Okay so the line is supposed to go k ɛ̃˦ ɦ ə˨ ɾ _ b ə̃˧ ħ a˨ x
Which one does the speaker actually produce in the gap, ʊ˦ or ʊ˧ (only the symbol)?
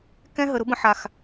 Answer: ʊ˦